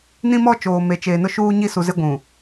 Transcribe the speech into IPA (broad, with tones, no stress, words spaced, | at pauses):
nĩ˦mɔ˦ t͡ʃoː˨me˨t͡ʃeː˨ nʊ˦ʃuː˦ɲi˦ su˨zɪ˦ ɡʷũ˨